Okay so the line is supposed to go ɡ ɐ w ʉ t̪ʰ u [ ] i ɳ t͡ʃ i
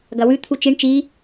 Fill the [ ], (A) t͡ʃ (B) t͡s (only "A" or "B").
A